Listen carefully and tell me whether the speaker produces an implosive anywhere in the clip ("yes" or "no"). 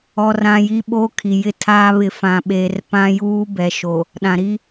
yes